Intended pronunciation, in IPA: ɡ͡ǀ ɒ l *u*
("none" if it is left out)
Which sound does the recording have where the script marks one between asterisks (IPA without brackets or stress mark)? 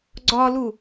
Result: u